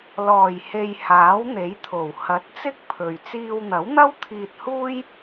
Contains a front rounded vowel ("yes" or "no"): no